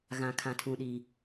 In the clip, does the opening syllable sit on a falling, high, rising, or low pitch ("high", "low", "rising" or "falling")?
low